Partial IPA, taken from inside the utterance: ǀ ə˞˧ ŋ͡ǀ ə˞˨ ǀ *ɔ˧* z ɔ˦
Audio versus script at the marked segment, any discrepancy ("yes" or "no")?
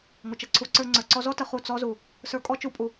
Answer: no